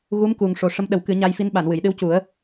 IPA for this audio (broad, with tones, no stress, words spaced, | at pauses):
ɣu˧˥m ku˨˩ŋʂo˨˩ ʂə˧˥mɗə˨˩˦wkɨ˨˩˦ ɲa˧jfi˧˥nɓa˨˩˨n wɨ˨˩˨jɗɨ˧˥wcu˨˩˦ə̯